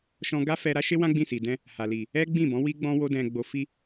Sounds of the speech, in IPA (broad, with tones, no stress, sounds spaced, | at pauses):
ʃ ɔ̃˧ ɡ a˦ f ɛ˧ ɾ a˦ ʃ e˦ w ã˦ ɡ͡b ĩ˦˨ s i˨ d ɛ̃˧ | h a˨ l i˨ | ɛ˦ ɡ͡b ĩ˦˨ b ɔ̃˨˦ w i˦ ɡ͡b ɔ̃˦ w o˦ d ɛ̃˧ ɡ͡b o˧ f i˦